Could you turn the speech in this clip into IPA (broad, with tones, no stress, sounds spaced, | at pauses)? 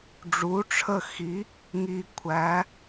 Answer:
ɖ͡ʐ u˩˥ ʈ͡ʂʰ ə˦˨ x i˩˥ | ŋ i˨˩ kʷʰ æ˩˧